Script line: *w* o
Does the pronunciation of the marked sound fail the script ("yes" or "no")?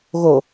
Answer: yes